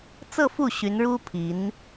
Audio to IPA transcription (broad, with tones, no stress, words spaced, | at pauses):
t͡sɤ˥˧fu˥˩ ɕy˧˥nɻu˥ pʰi˧˥n